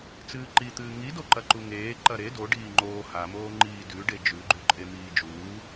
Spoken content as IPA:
t͡s ɨː ǃ i t̪ ɨː ŋ i d o ǃ ɐ ǃ u ŋ eː ǃ ɐ ɾ e d o ɖ iː ŋ͡ǃ oː h a m oː ŋ͡ǃ iː d ʉ ɖ e d͡ʒ ʉ ɡ͡ǃ ʉ ǃʼ e m iː d͡ʒ uː

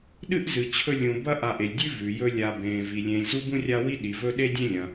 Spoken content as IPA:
ɗ ɨ˥ ʔ z ɨ˨ t͡ɕʰ ɵ˦ lʲ ũ˨ b ɐ˦ ʔ a˨ ʔ e˩ lʲ dʲ ʉ˦ v ʉ˩ j ɵ˦ lʲ a˨ b ẽː˩ v i˩ lʲ ẽ˨ lʲ z u˥ b ũ˥ rʲ a˦ w i˥ ɗ i˩ v ɵ˥ ɗ e˥ dʲ ẽ˥ lʲ ɐ̃˩

